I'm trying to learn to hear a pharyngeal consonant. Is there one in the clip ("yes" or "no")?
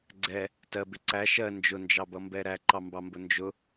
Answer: no